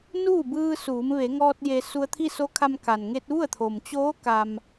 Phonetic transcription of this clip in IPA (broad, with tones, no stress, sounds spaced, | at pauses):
n uː˥˨ b ɯː˧ s uː˩˧ m ʋ e˩˧ ŋ ɔː˧ t̚ j e˧ s u˧ ə̯ t̪ʰ i˥˨ s o˧˥ kʰ a˧ m k a˩ n ŋ e˧ t̚ ʋ u˥˨ ə̯ t̪ʰ o˩ m t͡ɕ oː˧˥ k a˩ m